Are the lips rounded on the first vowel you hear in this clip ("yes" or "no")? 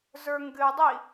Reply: no